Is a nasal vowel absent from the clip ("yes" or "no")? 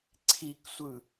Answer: yes